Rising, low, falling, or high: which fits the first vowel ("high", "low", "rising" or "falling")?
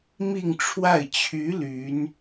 falling